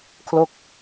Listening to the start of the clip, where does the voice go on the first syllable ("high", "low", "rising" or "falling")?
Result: falling